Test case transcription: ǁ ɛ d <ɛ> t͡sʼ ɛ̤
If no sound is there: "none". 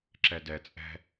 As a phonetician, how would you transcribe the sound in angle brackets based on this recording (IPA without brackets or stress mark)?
ɛ